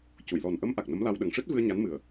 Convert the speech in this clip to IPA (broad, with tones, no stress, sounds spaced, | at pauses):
c u˨˩˨ j l ɔ˨˩ n ʔ ə˧˥ m ʔ a˨˩ k̚ n ə˧˥ m l a˧ w ɗ ə˨˩ ŋ ʂ ɨ˦˥ t̚ v ɨ˧ ə̯ ɲ a˧˥ n m ɨ˨˩ ə̯